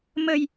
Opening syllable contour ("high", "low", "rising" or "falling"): low